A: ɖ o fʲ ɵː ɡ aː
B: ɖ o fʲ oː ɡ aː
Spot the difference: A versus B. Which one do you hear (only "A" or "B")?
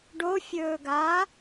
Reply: A